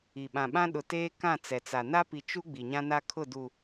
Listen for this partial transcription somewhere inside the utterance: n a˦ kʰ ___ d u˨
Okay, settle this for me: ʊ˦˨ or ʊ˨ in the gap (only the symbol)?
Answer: ʊ˦˨